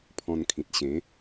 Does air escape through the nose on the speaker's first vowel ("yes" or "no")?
yes